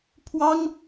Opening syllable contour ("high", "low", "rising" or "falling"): high